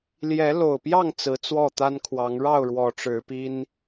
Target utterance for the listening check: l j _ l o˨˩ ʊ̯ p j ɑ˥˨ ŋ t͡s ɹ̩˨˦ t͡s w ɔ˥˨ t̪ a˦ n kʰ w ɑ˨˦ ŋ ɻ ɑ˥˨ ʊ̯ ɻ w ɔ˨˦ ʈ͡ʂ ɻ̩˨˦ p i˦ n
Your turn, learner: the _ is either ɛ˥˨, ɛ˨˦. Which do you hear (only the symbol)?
ɛ˨˦